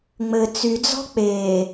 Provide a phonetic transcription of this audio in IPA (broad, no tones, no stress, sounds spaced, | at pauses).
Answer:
ŋ͡m ɘ t͡s y d͡z ɔ̤ k͡p e